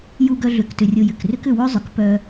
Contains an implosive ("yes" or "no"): no